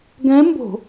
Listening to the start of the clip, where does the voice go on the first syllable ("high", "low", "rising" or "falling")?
rising